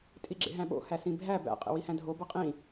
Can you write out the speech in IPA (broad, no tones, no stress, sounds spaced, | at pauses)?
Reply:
tʼ i ɡ͡ǁ ḛ ɦ æ̃ ɓ o̰ h æ s ĩ bʱ æ b æ̰ qʼ ḛ w i h æ̃ dʱ o b ɤ qʼ ĩ